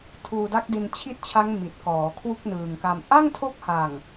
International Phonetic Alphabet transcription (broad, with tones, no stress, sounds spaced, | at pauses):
tʰ uː˧ d a˦˥ k̚ d i˧ n t͡ɕʰ i˦˥ t̚ t͡ɕʰ a˦˥ ŋ m i˨˩ t̚ k ɔː˩˦ kʰ w u˥˩ k̚ n ɯː˨˩ ŋ k a˧ m ʔ a˥˩ ŋ tʰ o˦˥ k̚ h a˨˩ ŋ